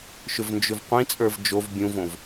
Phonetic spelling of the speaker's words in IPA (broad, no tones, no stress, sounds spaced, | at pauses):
ʃ ʏ v n d͡ʒ ʏ v qʷ ĩ t͡sʼ ə˞ v d͡ʒ o v bʲ ũ v õ v